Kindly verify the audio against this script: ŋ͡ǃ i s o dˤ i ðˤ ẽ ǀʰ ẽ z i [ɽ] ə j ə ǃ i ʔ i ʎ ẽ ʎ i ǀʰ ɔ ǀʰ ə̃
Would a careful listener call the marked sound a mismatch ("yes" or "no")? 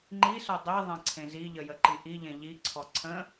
yes